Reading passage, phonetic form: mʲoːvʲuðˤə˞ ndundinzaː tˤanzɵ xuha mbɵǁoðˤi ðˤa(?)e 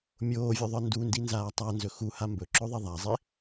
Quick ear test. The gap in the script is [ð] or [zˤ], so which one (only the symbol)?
zˤ